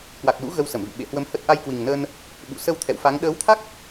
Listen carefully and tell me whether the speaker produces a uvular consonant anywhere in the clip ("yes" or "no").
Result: no